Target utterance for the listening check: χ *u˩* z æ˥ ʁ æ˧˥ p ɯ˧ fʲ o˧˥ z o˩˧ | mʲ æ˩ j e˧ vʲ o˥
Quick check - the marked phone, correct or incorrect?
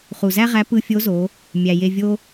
correct